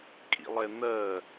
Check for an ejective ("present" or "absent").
present